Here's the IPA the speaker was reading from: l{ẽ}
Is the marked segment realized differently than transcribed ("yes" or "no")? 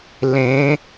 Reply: no